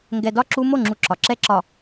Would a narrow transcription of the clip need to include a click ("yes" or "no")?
yes